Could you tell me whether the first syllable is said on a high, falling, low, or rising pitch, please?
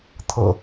low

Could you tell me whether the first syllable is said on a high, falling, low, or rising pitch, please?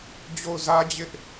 falling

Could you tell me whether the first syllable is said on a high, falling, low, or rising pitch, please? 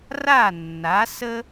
falling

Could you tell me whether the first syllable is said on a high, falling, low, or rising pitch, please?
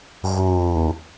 low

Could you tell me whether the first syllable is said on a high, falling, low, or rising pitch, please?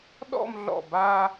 falling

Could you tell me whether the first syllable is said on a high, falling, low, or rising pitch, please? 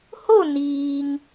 falling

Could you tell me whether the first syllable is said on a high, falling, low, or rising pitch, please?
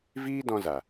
high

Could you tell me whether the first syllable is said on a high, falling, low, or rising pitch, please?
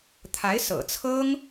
rising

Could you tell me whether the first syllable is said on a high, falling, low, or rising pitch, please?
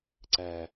high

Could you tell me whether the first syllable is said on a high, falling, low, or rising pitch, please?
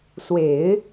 low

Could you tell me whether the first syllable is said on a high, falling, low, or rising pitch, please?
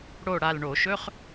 falling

